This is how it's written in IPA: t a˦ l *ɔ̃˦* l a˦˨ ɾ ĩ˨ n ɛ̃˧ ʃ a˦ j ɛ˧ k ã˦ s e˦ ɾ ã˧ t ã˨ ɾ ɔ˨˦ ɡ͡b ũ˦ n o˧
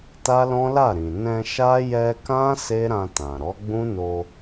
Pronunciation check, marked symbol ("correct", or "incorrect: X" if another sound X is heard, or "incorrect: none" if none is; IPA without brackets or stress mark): correct